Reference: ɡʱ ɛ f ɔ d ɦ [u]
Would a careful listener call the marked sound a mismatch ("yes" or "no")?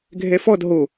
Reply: yes